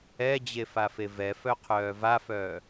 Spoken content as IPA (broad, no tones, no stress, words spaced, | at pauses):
ɛd͡ʑefafe vɛfœqʰœː vafœː